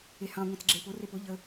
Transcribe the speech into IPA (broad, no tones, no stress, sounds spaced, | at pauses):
e h ɑ̃ ŋʷ ẽ t͡s ɡ͡ǁ e p ʊ r e p ʊ ʎ ə